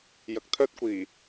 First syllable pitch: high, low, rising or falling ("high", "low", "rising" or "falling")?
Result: low